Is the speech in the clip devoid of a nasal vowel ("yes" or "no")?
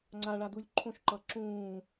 no